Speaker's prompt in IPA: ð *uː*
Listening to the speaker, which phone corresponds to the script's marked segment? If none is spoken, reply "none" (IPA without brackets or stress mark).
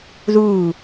uː